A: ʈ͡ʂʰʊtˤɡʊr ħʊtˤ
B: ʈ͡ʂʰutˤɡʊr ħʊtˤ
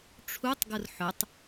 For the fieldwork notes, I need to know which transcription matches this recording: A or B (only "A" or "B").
B